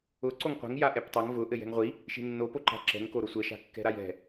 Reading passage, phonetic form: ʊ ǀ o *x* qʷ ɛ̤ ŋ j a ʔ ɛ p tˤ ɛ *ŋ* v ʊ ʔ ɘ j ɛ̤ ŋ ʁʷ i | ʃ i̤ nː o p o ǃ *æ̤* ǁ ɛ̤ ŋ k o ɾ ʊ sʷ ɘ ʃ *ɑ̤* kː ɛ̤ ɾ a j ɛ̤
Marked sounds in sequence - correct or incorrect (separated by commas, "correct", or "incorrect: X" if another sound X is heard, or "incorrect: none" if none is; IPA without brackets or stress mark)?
incorrect: ŋ, correct, incorrect: a̤, incorrect: a̤